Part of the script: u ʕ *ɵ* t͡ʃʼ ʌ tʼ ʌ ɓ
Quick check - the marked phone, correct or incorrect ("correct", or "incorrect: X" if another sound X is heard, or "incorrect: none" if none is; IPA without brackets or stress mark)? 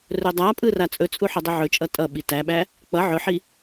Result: correct